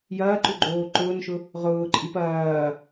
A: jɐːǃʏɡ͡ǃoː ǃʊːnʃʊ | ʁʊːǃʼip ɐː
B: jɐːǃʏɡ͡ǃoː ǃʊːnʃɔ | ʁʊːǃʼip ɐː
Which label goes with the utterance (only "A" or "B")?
A